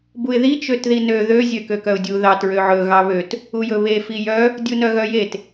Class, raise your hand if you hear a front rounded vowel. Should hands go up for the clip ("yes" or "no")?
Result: yes